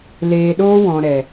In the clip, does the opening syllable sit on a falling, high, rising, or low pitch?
low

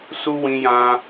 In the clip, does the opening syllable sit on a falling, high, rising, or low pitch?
high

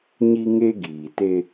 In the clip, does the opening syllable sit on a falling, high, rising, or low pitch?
high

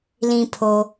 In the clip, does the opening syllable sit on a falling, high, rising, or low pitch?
low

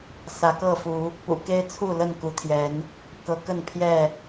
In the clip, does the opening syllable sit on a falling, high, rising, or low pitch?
rising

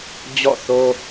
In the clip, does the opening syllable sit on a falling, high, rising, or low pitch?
falling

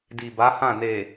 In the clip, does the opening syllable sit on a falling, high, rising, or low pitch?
low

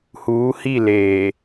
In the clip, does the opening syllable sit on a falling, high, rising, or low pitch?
rising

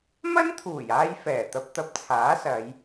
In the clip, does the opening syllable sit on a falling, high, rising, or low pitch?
high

